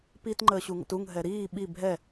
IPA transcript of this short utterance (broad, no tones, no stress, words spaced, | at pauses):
pit ŋ͡ǃəːɕuŋə̰tuŋ ɦɛɾiː ɓi bʱɛ